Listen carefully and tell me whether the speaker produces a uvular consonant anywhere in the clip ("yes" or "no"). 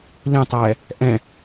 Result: no